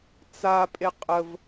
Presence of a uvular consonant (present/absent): present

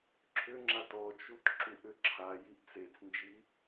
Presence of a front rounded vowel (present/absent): present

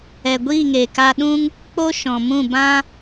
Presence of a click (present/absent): absent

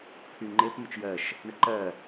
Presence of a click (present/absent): present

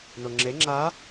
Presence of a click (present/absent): present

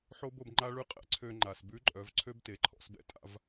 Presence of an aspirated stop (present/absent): present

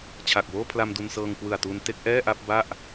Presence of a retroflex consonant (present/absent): absent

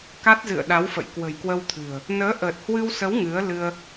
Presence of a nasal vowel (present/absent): absent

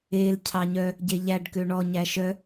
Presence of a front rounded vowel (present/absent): present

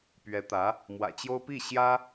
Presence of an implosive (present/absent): absent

